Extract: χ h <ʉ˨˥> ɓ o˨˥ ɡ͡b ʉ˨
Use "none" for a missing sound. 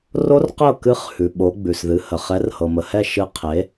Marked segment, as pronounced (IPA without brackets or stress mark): ʉ˨